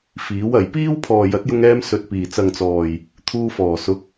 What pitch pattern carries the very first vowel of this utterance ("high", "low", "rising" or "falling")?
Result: rising